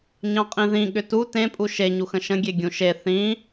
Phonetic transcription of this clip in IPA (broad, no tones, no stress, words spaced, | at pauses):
ɲɑ̃qʼĩðĩ ɠʏtu tẽpʼu ʃeɲuxə̃ ʃə̃ɡʲe ɡʲũʃe θĩ